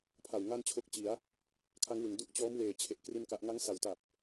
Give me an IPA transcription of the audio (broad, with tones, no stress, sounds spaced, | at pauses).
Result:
pʰ a˨˩ w ŋ a˥˩ n t͡ɕʰ o˦˥ k̚ t͡ɕ i˩˦ a̯ | kʰ a˦˥ ŋ w ɯ˩˦ ŋ d u˦˥ ʔ t͡ɕ ɔː˦˥ m w eː˨˩ t͡ɕʰ e˨˩ ʔ k r i˥˩ n k a˦˥ ʔ ŋ a˦˥ ŋ s a˩˦ w t a˨˩ p̚